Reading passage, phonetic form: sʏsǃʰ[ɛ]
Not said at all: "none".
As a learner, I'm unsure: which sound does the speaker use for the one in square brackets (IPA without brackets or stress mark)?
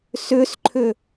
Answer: ʏ